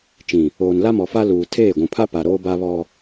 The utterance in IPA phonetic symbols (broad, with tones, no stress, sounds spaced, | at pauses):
t͡ʃ ĩ˨ | oː˨ n l a˦ m ɔ˨ f a˦ l uː˨ tʰ eː˦˨ ɡʷ ũ˨ pʰ a˦ p a˨ ɾ oː˦ b a˦ β ɔ˦